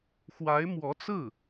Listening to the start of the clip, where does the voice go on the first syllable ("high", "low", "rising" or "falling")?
rising